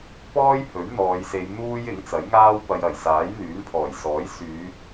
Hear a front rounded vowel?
yes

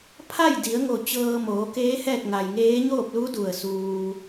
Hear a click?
no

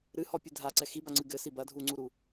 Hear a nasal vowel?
no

